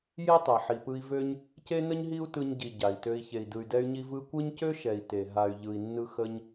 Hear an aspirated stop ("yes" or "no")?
no